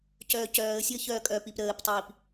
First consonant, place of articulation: palatal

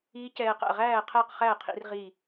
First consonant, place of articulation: palatal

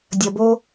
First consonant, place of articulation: alveolar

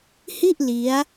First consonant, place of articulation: glottal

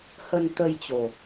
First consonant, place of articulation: glottal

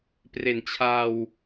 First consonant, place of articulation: labial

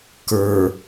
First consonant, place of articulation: velar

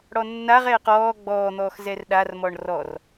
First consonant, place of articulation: retroflex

